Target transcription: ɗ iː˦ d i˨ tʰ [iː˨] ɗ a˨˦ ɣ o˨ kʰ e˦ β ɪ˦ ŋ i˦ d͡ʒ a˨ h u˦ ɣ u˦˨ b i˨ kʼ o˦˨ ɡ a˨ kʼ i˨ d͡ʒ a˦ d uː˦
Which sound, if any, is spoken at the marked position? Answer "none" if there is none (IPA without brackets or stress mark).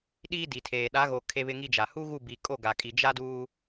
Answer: eː˨